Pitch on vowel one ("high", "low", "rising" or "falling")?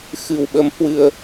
low